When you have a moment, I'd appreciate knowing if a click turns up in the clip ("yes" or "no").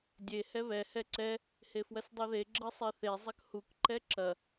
yes